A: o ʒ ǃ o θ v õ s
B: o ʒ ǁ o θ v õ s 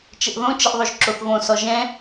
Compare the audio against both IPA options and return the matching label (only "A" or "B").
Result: B